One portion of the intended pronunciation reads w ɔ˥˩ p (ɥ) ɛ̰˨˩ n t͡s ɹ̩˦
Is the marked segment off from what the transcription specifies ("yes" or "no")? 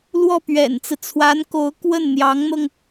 no